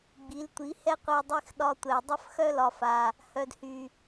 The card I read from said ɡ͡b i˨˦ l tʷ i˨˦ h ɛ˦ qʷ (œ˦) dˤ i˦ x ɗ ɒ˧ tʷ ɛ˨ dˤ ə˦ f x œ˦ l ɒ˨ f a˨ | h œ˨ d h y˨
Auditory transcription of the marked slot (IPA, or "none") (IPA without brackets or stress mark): œ˧